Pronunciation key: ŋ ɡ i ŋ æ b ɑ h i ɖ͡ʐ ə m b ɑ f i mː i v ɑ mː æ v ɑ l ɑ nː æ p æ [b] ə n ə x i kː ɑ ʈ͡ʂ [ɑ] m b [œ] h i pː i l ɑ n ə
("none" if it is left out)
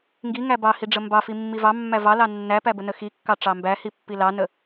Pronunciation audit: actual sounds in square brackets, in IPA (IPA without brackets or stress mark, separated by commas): b, ɑ, æ